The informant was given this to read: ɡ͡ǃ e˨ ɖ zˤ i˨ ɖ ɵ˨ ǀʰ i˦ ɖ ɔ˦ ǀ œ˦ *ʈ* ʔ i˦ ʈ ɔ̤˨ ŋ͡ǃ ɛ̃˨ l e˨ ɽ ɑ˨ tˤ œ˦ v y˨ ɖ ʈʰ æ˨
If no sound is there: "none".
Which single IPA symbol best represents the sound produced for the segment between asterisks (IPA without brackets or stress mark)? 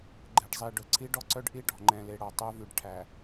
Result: ɖ